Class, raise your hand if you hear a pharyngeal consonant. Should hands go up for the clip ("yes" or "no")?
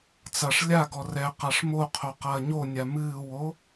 no